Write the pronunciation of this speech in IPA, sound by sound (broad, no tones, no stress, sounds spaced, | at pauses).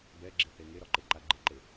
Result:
b ɛ ɡ͡ǁ ɪ θ e ŋ e ɾ ɒ ǃ e ǃ a ɡ͡ǃ ɪ ǃ e